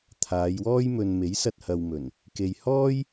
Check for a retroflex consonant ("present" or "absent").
absent